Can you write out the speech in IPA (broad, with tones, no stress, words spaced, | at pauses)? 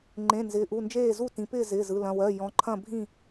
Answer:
ŋ͡ǃẽ˩˧˩nzɪː˩˧ʔu˩˧˩nd͡ʒeː˥˨ zu˥˨tĩ˩˧pɪː˥˨ zɪː˩˧˩z ɯ˩˧˩lɐ̃˩˧˩wɜ˩˧˩ jɔ̃˩˧ǃʰɐ̃˥˨ bʱĩ˥˨